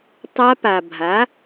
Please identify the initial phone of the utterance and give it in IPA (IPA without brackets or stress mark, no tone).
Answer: tˤ